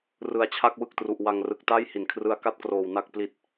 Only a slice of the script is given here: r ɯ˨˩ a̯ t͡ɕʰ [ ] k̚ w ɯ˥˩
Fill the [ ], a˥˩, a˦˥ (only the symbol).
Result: a˥˩